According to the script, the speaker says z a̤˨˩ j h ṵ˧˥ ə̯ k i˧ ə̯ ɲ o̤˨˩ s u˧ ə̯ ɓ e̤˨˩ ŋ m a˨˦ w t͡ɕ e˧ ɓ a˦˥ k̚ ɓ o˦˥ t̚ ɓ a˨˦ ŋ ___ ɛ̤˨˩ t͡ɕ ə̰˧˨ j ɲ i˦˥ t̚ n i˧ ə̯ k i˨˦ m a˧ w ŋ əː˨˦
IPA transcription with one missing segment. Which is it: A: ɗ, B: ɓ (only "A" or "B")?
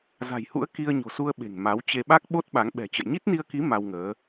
B